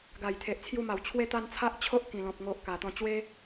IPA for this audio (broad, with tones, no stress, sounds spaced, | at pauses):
ɡ a˨˩ j t̪ʰ e˨ ʔ t͡sʰ j u˧ m a˨˩ w t͡ɕʰ w e˦ t̪ a˦ n t͡sʰ a˦ ʔ t͡ɕʰ o˦ ʔ k ĩ˨˩ l ɔ̃˨ p̚ ŋ o˨ ʔ k a˨˩ t̪ ɔ̃˧ t͡ɕ w e˦